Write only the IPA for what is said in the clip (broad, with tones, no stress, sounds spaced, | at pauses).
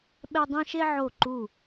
ɓ ɛ˧ dˤ ẽ˧ ʃ e˧ ʕ o˧˩ ǃ u˧˩